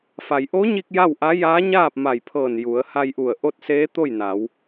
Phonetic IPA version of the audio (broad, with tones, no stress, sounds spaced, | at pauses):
f a˩ j ʔ o˧˥ ɲ i˧ k̚ j a˥˨ w ʔ a˧˥ j aː˧˥ ɲ aː˥˨ p̚ m a˧˩ j pʰ ɤː˧˩ n j u˩˧ ə̯ h a˧ j ʔ u˧˩ ə̯ ʔ o˥˨ t̚ s eː˧˥ t̪ o˥˨ j n a˩˧ w